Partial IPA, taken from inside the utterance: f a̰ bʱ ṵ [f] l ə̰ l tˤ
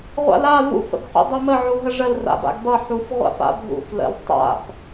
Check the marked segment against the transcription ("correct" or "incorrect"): correct